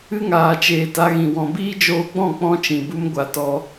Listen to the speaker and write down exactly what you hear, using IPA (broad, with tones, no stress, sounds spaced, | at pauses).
ɨ˦ ŋ aː˨ t͡ʃ eː˨ t a˧ ɣ ĩ˨ w ɔ̃˨ b iː˦ d͡ʒ oː˧ ɡ͡b ɔ̃˦˨ k͡p ɔ̃˦ t͡ʃ ĩ˨ b u˦ m ɡʷ a˧ t ɔ˧